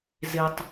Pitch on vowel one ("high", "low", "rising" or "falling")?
low